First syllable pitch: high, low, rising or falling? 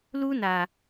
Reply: high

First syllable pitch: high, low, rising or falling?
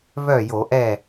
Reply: falling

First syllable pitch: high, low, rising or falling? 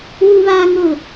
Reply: high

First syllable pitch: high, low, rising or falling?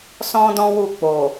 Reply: high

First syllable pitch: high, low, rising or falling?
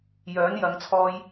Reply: rising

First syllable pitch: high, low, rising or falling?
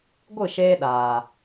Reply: falling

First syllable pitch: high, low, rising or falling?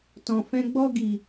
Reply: low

